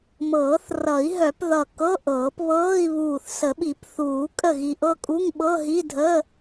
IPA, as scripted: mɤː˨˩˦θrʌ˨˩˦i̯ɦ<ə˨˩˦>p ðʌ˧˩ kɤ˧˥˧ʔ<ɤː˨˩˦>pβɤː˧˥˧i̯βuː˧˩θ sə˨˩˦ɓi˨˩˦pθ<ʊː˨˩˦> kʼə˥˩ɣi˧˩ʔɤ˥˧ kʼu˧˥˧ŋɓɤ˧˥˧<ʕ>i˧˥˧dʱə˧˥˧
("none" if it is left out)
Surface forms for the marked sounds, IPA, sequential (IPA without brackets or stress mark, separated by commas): œ˨˩˦, ɤː˨˩˦, uː˨˩˦, ɦ